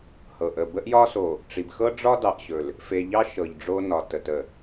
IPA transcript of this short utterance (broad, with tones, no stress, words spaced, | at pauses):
hɤ˨ʔə˨ bə˦ʔjɒ˦so˨ | ʈ͡ʂi˨b xɤ˦ɖ͡ʐɒ˦ dɑ˨ʔɕɵ˨l | fe˨ʎɑ˦ ʃɤ˨ʎɖ͡ʐo˦nɒ˨ tə˨tə˨